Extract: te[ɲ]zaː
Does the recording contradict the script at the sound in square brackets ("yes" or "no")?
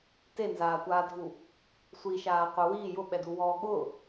yes